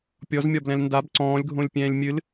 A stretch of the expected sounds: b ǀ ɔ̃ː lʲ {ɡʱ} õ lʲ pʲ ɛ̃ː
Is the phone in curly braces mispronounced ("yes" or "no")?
no